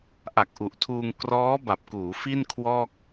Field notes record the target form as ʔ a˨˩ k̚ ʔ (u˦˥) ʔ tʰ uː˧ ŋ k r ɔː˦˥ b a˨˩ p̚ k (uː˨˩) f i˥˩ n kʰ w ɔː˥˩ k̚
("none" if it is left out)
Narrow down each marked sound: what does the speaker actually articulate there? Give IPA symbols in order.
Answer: u˨˩, uː˩˦

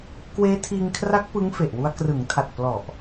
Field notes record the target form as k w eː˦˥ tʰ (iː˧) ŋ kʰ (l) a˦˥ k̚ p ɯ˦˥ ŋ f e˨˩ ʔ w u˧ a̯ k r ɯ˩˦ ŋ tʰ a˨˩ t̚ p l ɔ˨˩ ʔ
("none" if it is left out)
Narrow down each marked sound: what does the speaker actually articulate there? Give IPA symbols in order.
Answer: iː˧, r

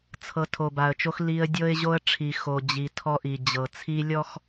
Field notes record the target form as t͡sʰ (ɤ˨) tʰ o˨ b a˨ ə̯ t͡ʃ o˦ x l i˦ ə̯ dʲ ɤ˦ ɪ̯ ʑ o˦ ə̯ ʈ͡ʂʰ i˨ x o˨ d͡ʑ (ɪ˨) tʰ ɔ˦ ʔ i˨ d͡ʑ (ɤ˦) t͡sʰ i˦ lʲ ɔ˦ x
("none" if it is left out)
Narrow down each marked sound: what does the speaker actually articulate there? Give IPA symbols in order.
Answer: ɤ˨, i˨, ɤ˨

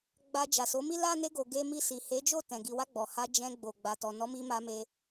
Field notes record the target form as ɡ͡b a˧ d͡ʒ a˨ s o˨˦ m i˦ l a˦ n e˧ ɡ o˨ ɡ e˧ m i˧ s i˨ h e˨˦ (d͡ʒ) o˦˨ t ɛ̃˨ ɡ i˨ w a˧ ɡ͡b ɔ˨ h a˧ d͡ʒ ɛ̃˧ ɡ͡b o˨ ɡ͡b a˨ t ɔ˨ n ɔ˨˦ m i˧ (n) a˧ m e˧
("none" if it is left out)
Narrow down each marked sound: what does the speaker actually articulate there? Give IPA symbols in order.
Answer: d͡ʒ, m

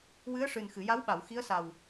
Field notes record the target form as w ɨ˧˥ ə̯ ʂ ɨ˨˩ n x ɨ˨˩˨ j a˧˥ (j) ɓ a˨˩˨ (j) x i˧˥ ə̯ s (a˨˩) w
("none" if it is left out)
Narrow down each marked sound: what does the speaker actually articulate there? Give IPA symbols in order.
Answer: w, w, a˨˩

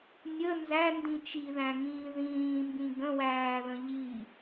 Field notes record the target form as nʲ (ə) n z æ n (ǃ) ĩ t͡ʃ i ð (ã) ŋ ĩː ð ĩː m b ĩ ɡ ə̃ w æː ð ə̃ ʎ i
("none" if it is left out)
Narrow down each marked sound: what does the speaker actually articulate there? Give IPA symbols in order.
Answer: ə, d, æ̃

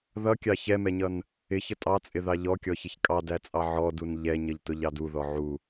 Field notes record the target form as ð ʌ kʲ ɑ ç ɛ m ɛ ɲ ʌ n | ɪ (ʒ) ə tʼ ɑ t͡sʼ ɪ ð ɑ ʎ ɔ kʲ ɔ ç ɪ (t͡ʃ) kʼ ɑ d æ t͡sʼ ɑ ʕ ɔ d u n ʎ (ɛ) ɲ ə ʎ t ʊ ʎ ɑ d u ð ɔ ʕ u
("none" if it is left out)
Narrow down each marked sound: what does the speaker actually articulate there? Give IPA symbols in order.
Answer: ç, ç, ɛ

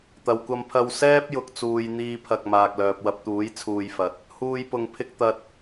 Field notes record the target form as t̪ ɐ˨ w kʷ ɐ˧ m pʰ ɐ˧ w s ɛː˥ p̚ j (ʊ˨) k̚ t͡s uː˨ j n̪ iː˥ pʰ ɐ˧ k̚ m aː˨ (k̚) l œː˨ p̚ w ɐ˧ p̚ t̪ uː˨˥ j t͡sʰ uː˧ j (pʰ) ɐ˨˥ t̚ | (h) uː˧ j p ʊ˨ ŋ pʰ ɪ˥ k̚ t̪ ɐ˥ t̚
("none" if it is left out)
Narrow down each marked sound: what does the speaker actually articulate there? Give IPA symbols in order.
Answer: ʊ˨, k̚, f, h

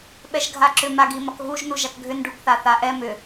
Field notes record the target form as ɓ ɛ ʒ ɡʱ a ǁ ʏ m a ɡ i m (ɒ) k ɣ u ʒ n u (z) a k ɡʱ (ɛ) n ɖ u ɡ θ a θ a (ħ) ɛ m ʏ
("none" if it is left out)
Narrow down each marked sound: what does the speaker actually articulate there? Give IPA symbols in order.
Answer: ɒ, ʒ, ʏ, ʔ

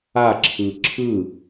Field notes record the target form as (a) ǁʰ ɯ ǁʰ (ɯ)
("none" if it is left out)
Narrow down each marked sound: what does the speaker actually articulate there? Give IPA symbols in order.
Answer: a, ɯ

